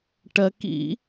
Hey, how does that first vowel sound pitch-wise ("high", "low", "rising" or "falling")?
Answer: low